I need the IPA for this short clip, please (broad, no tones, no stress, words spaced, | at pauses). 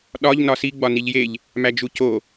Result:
ɗɒʎ nɒsi ɡ͡bɒniʎjeʎ | mæd͡ʒuco